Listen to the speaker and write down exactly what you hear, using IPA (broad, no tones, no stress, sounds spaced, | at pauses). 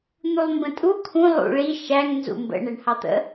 n̪ u lˠ m b ə̃ tʼ u kʰ ũ lˠ ṵ ɭ i ʃ æ ŋ n z ṵ m b ə̰ ɳ ɛ ɳ h ɑ t̪ ə̰